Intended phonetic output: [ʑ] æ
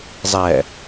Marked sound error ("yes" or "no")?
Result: yes